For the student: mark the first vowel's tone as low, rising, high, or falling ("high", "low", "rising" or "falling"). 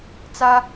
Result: high